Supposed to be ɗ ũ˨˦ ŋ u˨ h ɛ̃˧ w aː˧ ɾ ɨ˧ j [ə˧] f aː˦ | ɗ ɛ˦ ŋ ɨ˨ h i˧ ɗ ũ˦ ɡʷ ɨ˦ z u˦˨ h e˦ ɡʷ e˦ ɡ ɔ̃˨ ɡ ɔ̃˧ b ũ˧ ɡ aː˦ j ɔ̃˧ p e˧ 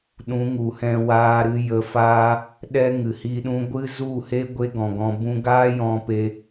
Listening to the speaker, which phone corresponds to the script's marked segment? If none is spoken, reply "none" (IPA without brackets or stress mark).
ə˧